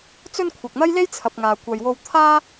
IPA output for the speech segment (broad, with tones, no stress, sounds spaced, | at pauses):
t͡s ɵ˧ n kʷʰ ɐ˨ k̚ n̪ ɐ˥ j l e˥ j t͡sʰ ɐ˨ p̚ ŋ aː˨ kʷ ɐ˨ j w o˧ w t̪ʰ aː˥